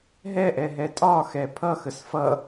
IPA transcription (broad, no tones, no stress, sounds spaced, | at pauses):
ɦ ɛ ʔ ɛ ɦ ɛ tʼ ɒ x ɛ pʰ ʌ x ə s f ʌ